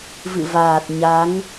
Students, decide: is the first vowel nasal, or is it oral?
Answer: oral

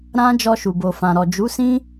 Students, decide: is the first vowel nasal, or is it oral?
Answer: nasal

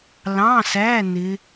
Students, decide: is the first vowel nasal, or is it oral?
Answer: nasal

